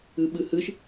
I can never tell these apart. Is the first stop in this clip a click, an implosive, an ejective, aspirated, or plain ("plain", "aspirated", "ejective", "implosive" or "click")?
implosive